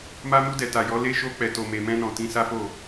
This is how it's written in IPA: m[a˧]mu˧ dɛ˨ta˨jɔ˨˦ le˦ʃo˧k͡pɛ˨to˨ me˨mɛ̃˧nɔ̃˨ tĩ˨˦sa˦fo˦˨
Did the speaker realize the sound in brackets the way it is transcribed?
yes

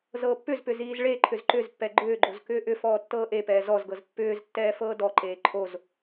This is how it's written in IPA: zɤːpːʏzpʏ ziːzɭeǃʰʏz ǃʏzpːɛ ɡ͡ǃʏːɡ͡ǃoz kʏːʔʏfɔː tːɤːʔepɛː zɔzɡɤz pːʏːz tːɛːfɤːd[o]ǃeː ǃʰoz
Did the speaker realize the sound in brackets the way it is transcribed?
no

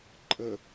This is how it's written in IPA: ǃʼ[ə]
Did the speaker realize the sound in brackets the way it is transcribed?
yes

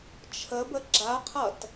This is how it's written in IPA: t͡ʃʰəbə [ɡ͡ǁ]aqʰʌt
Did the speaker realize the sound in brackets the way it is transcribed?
yes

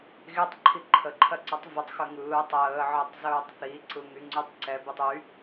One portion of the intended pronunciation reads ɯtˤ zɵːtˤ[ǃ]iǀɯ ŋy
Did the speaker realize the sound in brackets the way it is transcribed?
no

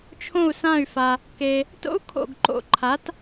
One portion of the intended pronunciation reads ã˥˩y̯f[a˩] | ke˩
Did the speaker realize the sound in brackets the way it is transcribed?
yes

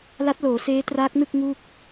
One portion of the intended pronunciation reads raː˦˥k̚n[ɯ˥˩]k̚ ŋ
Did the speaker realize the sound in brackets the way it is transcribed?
yes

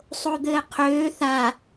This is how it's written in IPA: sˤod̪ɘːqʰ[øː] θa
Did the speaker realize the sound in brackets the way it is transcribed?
yes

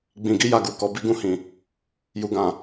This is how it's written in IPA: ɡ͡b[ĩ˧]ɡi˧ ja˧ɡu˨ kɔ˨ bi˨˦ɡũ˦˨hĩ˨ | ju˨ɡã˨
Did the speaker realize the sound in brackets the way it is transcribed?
no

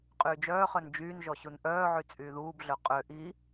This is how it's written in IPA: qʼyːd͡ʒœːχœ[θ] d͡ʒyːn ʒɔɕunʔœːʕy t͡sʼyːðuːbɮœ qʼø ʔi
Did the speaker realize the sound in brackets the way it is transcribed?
no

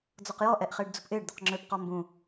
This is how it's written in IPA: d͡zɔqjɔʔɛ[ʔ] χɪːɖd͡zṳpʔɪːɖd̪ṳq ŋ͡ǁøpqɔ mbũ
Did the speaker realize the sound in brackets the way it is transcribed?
yes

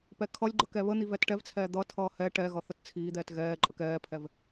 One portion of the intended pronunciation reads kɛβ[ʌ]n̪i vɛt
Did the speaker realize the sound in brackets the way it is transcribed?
no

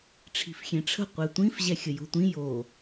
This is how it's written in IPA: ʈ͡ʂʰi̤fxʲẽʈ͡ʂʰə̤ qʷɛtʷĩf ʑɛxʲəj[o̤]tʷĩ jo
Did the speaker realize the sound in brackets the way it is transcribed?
yes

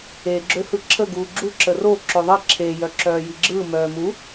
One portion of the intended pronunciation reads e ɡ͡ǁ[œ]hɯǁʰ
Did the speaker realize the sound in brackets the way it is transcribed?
no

